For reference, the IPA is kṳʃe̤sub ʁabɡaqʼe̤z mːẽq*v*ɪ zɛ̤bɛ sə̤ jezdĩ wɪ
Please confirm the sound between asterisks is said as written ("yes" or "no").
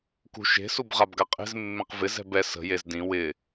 yes